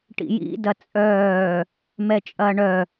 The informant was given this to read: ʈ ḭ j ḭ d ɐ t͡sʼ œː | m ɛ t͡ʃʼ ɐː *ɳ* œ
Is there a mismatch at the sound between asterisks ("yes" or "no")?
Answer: no